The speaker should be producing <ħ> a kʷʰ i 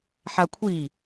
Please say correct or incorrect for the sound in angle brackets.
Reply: correct